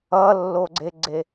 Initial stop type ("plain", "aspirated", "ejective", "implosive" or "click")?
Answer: click